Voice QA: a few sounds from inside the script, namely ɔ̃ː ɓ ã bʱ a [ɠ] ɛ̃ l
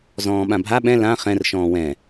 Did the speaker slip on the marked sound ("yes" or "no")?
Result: yes